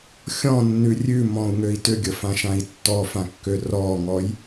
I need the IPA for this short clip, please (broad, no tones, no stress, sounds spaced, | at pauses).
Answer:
xʲ ɔ̃ nː ʉ rʲ ʉ m ɔ̃ u̯ ŋ ø i̯ t ʏ ɡʲ ə f ã ʃ ã i̯ tː ɔ f ã kː ø r ɔ ŋ ɔ j